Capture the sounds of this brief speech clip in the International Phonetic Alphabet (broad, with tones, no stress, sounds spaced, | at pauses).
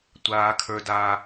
tʷ aː˦ kʰ ə˞˦ d aː˦